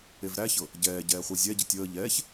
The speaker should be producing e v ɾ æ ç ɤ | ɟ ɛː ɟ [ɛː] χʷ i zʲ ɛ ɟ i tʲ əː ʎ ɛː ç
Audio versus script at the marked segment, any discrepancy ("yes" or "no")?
no